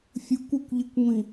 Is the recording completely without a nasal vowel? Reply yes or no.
no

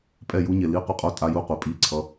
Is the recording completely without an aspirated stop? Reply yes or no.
no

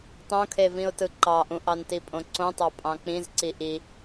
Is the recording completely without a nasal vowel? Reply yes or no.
no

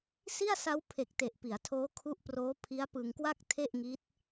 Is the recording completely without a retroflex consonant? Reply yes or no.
yes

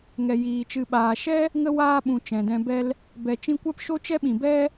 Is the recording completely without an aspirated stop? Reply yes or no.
yes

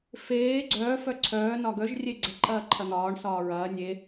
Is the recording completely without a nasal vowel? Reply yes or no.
yes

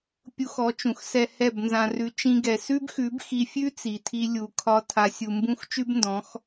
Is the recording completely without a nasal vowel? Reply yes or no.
no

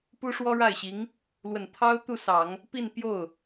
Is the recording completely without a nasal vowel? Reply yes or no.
yes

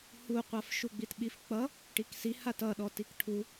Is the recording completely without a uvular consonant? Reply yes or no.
no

